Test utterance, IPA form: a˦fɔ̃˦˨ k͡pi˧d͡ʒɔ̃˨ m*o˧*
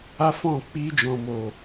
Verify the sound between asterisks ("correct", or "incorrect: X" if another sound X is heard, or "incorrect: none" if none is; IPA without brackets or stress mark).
incorrect: o˨